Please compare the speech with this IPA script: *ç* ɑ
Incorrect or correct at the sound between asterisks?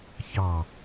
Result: correct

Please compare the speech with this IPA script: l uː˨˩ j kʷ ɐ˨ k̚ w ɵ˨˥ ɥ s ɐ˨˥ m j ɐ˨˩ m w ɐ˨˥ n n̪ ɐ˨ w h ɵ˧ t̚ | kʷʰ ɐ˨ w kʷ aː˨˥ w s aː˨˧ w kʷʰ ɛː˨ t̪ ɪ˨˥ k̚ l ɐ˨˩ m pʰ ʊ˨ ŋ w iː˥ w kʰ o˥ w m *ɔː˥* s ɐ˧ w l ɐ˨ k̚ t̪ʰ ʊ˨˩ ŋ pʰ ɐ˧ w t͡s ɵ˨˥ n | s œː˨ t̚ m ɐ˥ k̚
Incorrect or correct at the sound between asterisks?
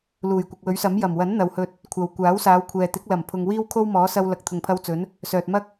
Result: incorrect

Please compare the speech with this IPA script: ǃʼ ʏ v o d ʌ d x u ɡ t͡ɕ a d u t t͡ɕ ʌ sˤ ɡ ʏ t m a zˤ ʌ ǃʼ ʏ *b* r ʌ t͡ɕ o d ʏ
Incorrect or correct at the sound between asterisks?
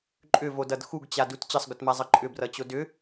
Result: correct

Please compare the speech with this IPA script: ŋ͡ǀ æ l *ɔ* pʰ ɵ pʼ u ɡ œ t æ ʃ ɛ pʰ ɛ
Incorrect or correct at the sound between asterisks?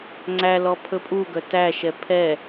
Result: correct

